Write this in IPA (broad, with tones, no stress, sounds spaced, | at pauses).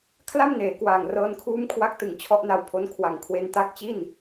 kʰ l a˥˩ m n eː˩˦ k w aː˨˩ ŋ r ɤː˧ n kʰ uː˦˥ m kʰ w a˦˥ k̚ t ɯ˨˩ ŋ t͡ɕʰ ɔ˦˥ ʔ n a˧ w pʰ o˦˥ n kʰ w a˨˩ ŋ kʰ w e˧ n t a˦˥ k̚ t͡ɕ i˥˩ n